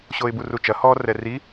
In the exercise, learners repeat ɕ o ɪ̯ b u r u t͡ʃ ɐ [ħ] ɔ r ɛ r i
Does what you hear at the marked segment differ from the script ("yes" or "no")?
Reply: yes